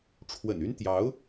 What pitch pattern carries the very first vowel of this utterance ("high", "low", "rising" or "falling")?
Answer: low